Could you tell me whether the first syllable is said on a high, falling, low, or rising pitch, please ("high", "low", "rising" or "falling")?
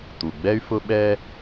low